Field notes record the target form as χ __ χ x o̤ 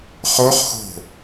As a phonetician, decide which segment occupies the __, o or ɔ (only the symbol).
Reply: o